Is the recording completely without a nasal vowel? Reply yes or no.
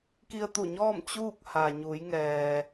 yes